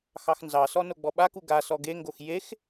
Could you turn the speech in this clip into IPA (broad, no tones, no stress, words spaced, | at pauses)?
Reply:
xɑxnzɑsɔ noɡ͡bɔɓaku ɡa sɔɡeŋɡox jex